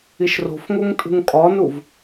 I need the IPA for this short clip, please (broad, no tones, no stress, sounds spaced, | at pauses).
i ʃ r o̤ f ŋ o ŋ tʼ ṳ ŋ kʼ ɒ n u v